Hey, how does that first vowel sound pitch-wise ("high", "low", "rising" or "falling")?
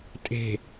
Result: low